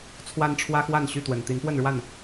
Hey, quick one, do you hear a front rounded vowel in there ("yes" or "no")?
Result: yes